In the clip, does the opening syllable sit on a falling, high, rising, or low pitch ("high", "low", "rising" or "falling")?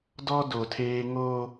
high